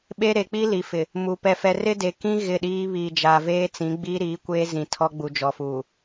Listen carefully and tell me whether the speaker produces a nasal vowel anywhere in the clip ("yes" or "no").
yes